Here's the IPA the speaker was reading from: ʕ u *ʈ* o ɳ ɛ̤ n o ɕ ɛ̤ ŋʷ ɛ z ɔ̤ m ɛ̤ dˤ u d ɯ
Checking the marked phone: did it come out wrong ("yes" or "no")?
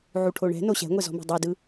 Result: yes